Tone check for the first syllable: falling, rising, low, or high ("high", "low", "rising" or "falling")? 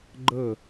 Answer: falling